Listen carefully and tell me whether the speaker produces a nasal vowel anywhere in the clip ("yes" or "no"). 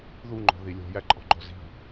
no